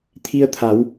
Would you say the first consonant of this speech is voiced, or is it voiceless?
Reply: voiceless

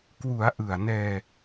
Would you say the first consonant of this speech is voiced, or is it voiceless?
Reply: voiceless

